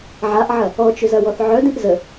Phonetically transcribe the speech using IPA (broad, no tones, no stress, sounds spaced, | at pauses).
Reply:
ʕ a ʔ ʕ ɐ | ɔ t͡ʃ ʏ z ɐ w ɔ θ ʕ œ d ĩ ʔ z ə